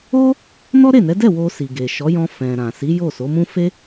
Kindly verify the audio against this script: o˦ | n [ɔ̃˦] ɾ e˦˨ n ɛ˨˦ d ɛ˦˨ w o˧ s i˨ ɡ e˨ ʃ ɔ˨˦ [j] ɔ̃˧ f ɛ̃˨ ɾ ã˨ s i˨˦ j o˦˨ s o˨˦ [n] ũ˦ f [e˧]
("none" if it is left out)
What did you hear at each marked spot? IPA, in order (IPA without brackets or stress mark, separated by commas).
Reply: ɔ˦, j, m, e˦